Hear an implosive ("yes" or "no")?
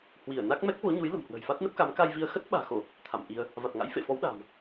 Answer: yes